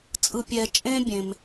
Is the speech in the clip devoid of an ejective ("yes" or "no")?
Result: no